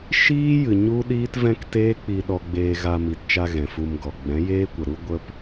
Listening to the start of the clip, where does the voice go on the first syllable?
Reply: high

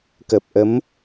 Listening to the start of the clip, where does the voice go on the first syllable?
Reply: low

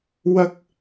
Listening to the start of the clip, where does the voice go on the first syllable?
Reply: high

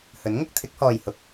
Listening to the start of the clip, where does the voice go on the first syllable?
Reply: rising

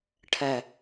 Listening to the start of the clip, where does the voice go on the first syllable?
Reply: low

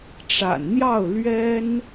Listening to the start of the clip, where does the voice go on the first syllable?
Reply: low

